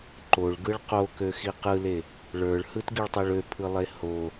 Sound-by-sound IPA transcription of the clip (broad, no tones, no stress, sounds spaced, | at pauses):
ǃ o ɭ ɡ ɯ ɭ q o k ø x i q ɯ l e | ɭ ə˞ ɭ h ɯ t ɡ i ɭ tˤ ø ɭ ø pʰ ɯ lˠ e h o